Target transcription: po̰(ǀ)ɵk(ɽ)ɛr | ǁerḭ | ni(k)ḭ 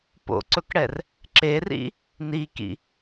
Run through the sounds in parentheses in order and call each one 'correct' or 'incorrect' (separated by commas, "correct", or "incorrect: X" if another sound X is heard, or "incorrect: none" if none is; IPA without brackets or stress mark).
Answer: correct, correct, correct